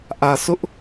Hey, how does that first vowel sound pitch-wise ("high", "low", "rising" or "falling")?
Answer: low